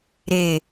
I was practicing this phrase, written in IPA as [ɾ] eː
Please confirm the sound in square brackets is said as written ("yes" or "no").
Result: yes